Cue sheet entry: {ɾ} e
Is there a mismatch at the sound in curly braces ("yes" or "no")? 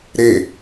no